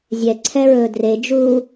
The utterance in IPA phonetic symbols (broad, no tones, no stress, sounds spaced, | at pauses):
zʲ ɛ ǀʰ ɛ ɹ ɵː d r e d͡ʒ uː